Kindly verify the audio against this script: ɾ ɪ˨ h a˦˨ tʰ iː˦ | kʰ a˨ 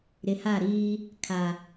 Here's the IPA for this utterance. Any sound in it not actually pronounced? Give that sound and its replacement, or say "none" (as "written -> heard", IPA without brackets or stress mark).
tʰ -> ɾ